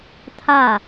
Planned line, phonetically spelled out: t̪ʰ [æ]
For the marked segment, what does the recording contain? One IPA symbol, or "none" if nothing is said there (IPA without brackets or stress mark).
a